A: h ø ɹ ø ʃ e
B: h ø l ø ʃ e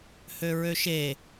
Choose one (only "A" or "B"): A